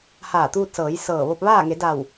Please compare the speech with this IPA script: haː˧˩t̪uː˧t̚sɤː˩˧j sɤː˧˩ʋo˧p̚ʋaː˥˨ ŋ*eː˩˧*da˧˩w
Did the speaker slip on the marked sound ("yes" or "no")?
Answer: yes